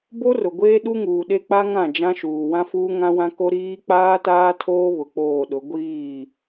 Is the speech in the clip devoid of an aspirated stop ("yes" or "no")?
no